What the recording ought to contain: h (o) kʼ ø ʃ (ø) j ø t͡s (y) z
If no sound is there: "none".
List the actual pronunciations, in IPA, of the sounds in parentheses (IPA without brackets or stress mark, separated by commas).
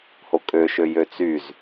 o, ø, y